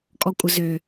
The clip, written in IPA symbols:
kʼ ɔ kʷʼ ə z ø

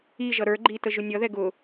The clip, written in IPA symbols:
i ʒ ʌ ɾ ə˞ ɡ͡ǃ i t ə ʒ ʊ nʲ ʌ ð ɛ ɡ ʊ

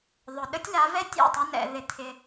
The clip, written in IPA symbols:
ðˤ ʊ˨ ɗ ə˦ tʲ l a˨˦ v ɛ˦ tʲ ɛ̰˦˨ tˤ ʊ˧ n ɛ̰˨ ð ɪ˧ t̪ʰ ɪ˧

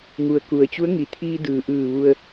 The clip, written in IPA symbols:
ŋ u˩ ə̯ k u˩ ə̯ t͡ɕ u˧˥ ə̯ ŋ i˩˧ t̪ʰ iː˧ d ɯː˩ ʔ ɯː˧˩ ʋ u˧ ə̯

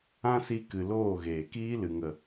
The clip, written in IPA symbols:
ã˦ s i˧ k ɨ˨ l oː˦˨ ɣ eː˨ k iː˦ l ɨ˨ ŋ ə˨

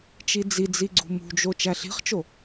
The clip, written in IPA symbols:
t͡ʃ i d͡z i d͡z i ɡ͡ǀ ṳ m ṳ d͡ʒ o t͡ʃ æ ɬ i̤ χ t͡ʃ o

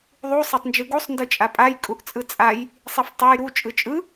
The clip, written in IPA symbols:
ðˤ u sˤ e tˤ n d͡ʒ ɯ ɡ u sˤ n d ɯ t͡ʃʼ a pʼ a j kʼ u ʔ t͡sʼ ɯ t͡sʼ a j | sˤ e f tˤ e j ɾ u t͡ʃʼ ɯ t͡ʃʼ ɯ

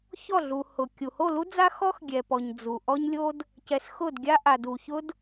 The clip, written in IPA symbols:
ç ɔ˦˨ ɮ u˨ h ʊ˨ kʲ u˨ h o˦˨ l u˦ d͡z a˦ x ɔ˦ x ɡʲ ɛ˨ p ɔ˨ ɲ d͡z u˨ ʔ ɔ˦ ɲ lʲ o˦ d | c ɛ˨ s x ʊ˦˨ d ɡʲ a˦ ʔ a˨ d u˨ ç ʊ˦ d

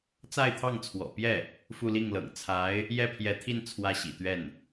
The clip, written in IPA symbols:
t͡s a˥˧ ɪ̯ t̪ʰ ɑ˥˩ ŋ t͡sʰ w ɔ̰˨˩ p j ɛ˥˩ | f u˥˧ l i˥˩ ŋ l ɤ̰˨˩ ŋ t͡sʰ a˧˥ ɪ̯ | j ɛ˥˩ pʰ j ɛ˧˥ t̪ʰ i˥˧ n t͡sʰ w ä˥˩ ɕ ḭ˨˩ t̪ ɥ ɛ˥˩ n

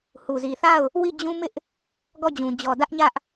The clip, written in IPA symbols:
h u˨ z i˨ θ a˦˨ ʊ̯ | w i˦˨ d͡ʑ ũ˦ m ɪ˦ ʔ | ɡ ɔ˦˨ d͡ʑ ũ˨ d͡ʑ ɔ˨ d ä˦ ʔ ɲ ä˦ ʔ

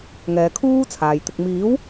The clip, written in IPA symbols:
ŋ ɛː˨˧ kʰ uː˥ t͡sʰ aː˨ j t̪ ɪ˧ k̚ m iː˨˥ w

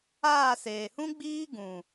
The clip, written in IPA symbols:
aː˦˨ s eː˨ h ũ˦ ɡ͡b iː˦ ɡ ũ˨

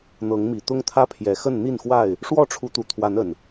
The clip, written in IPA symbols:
n̪ ɤ˨˦ ŋ m i˨˩ t̪ ʊ˦ ŋ t̪ʰ ä˦ pʰ j ɛ˨˩ x ə˥˨ n n̪ i˥˨ n x w a˥˨ ɪ̯ | ʂ w ɔ˥˨ ʈ͡ʂʰ u˨˦ t̪ u˨˩ t̪ʰ w a˨˦ n ə˨˩ n

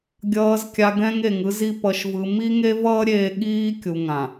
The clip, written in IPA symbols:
ɡʲ ʌː˨ z kʲ a˨ ɡ ɛ̃˦ ŋ e˨ ŋ ɯ˦ z i˦ p ʌ˨ ʃ v ɯ˨ m i˦ ŋ e˦ v ʌː˦ ɾʲ eː˦ ɠ iː˦ kʲ u˨ ŋ ã˨

